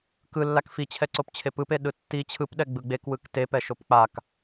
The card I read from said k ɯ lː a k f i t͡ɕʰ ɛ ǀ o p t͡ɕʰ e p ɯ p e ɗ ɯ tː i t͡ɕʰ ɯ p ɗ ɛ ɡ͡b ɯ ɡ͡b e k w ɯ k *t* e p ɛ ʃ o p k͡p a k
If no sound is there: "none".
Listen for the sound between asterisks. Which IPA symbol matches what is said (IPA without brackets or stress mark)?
t